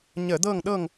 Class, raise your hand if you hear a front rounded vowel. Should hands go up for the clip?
no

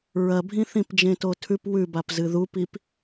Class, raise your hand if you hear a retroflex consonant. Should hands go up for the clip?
no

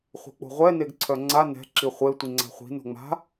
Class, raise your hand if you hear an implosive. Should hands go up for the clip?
no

